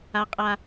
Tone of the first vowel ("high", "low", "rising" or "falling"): high